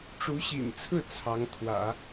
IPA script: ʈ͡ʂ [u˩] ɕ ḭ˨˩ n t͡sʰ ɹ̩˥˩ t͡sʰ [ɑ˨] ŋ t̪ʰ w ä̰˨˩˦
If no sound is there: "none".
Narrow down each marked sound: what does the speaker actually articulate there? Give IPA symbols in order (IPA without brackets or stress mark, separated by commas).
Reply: u˧˥, ɑ˧˥